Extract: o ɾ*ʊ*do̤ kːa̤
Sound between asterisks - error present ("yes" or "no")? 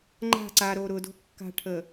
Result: no